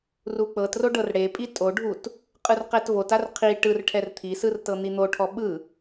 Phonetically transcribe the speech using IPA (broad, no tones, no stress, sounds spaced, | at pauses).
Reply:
r u k͡p ɤ t r o ɖ ɤ r ɽ e pʼ i tʼ o ɖʱ u t | qʼ ɯ r q ɛ t v o t a r qʰ i ʈ ɯ r ʈʰ ɛ r t̪ʰ i s ɯ r t ɤ n̪ i n̪ o ʈʰ ɔ ɓ ɯ